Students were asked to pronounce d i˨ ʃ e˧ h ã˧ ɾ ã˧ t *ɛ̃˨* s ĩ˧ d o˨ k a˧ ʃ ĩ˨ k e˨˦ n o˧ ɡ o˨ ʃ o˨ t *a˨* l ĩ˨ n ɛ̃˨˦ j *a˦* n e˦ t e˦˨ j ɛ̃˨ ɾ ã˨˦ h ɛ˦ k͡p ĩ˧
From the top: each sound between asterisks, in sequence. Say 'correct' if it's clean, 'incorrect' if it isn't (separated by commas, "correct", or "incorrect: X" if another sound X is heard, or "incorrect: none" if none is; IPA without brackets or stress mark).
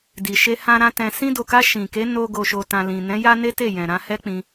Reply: correct, incorrect: ã˨, correct